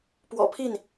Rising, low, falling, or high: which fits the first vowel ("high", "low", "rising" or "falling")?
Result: low